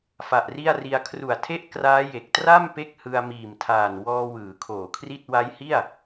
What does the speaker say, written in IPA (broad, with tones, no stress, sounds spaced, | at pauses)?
f a˨˩ ʔ r i˥˩ a̯ r i˧ a̯ kʰ r u˨˩ a̯ tʰ e˥˩ ʔ k r aː˦˥ j e˨˩ k̚ t r a˥˩ m p e˥˩ k̚ h ɯ˧ a̯ m iː˨˩ m tʰ aː˨˩ n w ɔː˧ w ɯː˩˦ kʰ oː˨˩ kʰ r i˥˩ t̚ w a˦˥ j h i˥˩ a̯